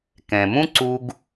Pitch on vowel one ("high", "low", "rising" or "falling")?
low